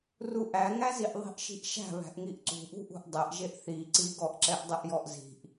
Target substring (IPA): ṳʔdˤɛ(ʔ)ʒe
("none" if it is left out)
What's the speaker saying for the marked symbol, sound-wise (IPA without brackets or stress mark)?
ʔ